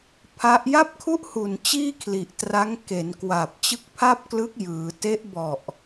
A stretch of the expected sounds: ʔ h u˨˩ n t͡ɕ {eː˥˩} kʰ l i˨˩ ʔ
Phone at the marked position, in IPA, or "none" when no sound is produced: iː˥˩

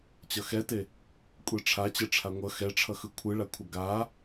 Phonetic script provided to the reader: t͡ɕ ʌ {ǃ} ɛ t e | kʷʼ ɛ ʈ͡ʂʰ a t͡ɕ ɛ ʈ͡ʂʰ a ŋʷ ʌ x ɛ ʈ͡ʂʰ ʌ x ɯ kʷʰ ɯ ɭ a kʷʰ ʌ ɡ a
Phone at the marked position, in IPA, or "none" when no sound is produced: x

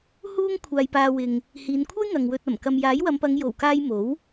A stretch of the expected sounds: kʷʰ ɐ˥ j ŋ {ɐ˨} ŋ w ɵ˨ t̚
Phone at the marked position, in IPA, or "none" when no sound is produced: ɐ˨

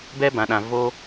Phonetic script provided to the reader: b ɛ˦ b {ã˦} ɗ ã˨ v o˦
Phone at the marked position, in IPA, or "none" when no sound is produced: ã˨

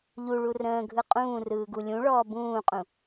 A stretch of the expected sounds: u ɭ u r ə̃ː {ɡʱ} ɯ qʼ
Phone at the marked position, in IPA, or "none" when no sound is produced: ɡʱ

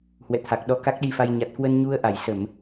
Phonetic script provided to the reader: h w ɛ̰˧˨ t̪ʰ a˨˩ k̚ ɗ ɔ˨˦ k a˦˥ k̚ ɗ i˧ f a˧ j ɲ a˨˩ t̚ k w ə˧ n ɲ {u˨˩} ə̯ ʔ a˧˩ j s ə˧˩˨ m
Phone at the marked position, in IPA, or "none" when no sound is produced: u˧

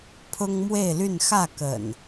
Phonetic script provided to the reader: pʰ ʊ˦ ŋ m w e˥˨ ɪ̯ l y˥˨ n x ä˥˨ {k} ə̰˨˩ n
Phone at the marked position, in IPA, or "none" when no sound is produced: k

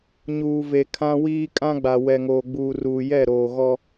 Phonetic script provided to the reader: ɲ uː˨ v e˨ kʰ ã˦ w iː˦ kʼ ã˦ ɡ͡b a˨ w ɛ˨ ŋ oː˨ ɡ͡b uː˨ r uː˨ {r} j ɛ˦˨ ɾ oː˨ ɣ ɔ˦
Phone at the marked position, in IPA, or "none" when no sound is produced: none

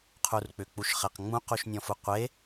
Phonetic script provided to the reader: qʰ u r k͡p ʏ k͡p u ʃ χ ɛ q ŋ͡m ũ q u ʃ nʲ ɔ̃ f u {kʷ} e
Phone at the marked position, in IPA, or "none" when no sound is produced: qʷ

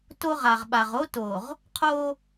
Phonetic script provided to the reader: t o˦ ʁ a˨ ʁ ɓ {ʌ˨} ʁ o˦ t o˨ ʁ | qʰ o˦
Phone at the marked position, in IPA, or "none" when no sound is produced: a˨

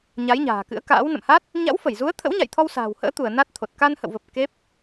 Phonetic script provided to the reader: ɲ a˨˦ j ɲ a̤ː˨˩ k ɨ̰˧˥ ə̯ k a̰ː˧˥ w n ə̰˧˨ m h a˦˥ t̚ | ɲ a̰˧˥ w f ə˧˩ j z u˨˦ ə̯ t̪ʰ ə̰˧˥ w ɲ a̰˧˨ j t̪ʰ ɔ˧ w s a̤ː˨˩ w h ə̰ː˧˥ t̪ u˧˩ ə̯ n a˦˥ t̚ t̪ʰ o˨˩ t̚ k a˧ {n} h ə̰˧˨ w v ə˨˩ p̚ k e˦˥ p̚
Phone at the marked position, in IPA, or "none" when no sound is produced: n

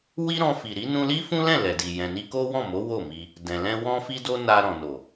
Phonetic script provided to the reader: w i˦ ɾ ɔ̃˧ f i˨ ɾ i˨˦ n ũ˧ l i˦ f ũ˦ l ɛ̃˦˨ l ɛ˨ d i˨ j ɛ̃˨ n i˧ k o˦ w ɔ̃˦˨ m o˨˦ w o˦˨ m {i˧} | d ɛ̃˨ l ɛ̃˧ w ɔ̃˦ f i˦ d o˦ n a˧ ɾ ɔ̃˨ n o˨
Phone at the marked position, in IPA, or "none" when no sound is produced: i˧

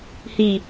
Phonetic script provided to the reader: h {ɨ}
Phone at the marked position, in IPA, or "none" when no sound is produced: i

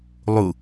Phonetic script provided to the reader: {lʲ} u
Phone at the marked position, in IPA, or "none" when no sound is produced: lˠ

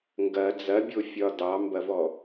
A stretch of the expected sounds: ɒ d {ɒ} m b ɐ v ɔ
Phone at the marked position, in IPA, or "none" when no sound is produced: ɑ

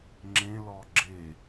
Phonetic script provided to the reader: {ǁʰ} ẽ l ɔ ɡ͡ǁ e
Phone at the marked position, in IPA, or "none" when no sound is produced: ŋ͡ǁ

